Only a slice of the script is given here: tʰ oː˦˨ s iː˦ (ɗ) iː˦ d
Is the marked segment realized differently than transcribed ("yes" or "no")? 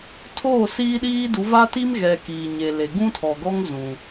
no